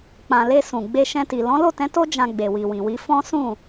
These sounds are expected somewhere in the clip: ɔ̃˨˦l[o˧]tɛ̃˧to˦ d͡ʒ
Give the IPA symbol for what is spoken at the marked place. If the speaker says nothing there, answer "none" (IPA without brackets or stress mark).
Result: o˦˨